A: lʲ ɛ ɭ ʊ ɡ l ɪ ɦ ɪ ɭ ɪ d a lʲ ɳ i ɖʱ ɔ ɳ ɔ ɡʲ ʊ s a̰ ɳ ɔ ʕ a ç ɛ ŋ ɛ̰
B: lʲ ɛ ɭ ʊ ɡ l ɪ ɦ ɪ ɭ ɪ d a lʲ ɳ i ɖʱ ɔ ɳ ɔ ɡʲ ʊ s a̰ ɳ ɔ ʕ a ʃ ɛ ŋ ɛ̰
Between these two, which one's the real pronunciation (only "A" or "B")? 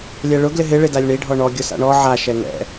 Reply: B